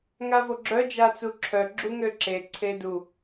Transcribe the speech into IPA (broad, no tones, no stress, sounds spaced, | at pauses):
ŋ a v o ɡ͡ǁ œ d͡ʒ a t͡s u ǁʰ œ ɡ͡ǁ u ŋ ø ǁ e ǀʰ e d u